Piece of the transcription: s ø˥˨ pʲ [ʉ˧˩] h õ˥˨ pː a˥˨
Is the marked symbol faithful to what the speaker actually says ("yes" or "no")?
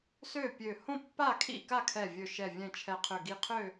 no